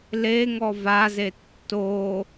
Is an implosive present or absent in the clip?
absent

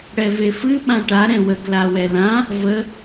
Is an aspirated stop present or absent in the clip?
absent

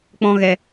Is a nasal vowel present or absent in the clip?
present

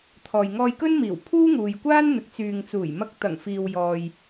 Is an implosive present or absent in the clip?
absent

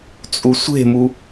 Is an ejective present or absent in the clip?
present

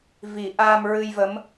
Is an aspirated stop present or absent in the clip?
absent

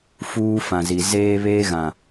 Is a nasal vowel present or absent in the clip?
present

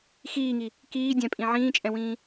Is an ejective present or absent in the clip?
present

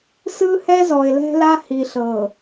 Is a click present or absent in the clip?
absent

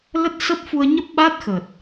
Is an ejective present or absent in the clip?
absent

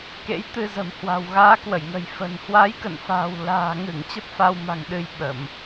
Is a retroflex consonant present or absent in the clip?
absent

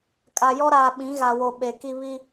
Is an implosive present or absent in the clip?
present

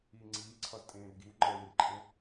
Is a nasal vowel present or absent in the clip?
present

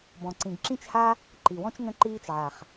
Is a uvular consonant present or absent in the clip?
present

